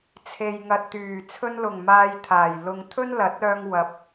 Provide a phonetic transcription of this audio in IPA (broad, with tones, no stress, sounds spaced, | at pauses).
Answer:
t͡sʰ e˨ j ŋ ɐ˨ t̚ t̪ yː˨˩ t͡sʰ ɵ˧ n l ʊ˨˩ ŋ m aː˨ j t̪ʰ aː˨˩ j l ʊ˧ ŋ t̪ʰ ɵ˥ n l ɐ˨˥ t̚ œː˧ ŋ w ɐ˨˥ p̚